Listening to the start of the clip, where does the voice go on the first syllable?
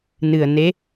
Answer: low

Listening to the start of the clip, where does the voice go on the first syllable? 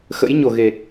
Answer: rising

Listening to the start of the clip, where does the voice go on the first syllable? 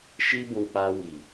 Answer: high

